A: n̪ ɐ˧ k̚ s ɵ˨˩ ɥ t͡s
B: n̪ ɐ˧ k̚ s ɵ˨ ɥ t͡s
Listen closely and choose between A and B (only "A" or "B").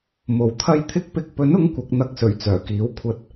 A